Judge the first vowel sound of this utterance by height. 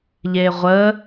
mid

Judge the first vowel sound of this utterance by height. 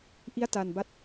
high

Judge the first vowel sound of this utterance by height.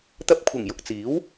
low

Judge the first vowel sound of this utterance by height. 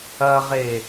low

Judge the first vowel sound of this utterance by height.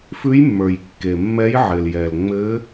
high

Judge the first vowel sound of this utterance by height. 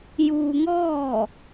high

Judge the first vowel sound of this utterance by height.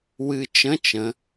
high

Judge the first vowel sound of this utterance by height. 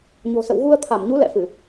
mid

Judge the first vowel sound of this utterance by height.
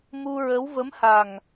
high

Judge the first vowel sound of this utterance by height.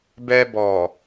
mid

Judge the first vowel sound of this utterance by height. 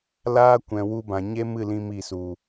low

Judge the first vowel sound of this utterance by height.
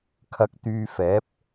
low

